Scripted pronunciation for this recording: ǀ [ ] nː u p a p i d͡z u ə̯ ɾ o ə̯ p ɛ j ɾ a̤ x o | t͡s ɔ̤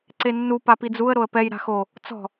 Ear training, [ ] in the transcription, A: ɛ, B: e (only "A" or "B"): B